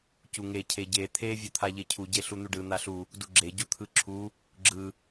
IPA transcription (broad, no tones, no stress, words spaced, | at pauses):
cuŋe cʰeɟe t̪ʰe vʲut̪ʰaʎecʰu ɟeɬun̪uɖɯ n̪aɬu | duɡ͡ǁe ɟut̪ʰɯǁʰu | ɡ͡ǁɯ